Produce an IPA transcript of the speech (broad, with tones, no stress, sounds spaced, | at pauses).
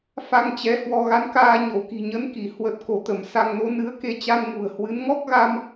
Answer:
f a˧ ŋ t͡ɕ ɛ˨˦ h w ɔ˧ ɣ a˨˦ n k aː˧ ɲ o˧˩ k i̤˨˩ ɲ ə˨˦ n k i˧˩ h w ə˨˩ t̚ k o˧˩ t̪ ə˧˩ m s a˧ ŋ n o˨˦ n ɨ˨˦ ə̯ k e˧ t͡ɕ a˧ n ŋ ṳ˨˩ ə̯ h w ɨ˨˦ n ŋ ɔ˦˥ k̚ ɣ a˧ m